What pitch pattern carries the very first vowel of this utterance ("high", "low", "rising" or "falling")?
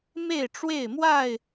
falling